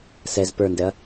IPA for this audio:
s ɛ z p ə˞ n d ɛ ɐ̯

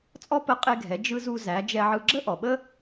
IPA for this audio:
t͡sʼ ɔ˥ p ə˧˥ qʼ e˧ ɡʱ ɛ˩˧ d͡ʒ ɯ˧ z u˧ z æ˩˧ d͡ʒ ɛ˧ ʕ ɯ˧ ɡ͡ǁ ə˥ ʔ ɔ˩ ɓ ə˥

